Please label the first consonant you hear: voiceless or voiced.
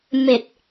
voiced